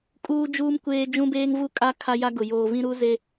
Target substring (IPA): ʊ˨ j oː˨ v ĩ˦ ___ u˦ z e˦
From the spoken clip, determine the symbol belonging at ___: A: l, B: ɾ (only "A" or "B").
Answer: B